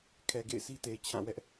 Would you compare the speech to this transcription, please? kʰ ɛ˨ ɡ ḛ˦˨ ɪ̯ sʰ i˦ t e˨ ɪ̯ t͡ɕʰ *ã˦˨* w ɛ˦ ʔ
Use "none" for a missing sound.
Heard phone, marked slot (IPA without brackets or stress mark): ã˦˨